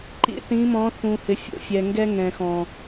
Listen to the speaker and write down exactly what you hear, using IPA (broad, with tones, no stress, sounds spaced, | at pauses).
ǃ ḭ˨ θ ĩ˨˦ m ɔ̃˨˦ θ ũ˨ h ɪ˨ fʲ o̰˨ fʲ ɛ˨ ŋ ɡ ɛ˦ ŋ ɛ̃˨ x ɔ̃˨